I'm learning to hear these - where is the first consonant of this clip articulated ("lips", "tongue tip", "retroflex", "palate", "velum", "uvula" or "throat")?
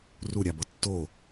tongue tip